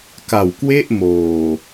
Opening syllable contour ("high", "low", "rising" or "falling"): low